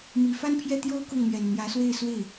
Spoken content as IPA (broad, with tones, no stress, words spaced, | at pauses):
mi˨˩fa˥npʰjɛ˥˩t̪jo˥ʊ̯ kʊ˥˩ŋn̪ɥɛ˨˩nn̪jä˧˥swe˥˧ɪ̯ swe˥˩ɪ̯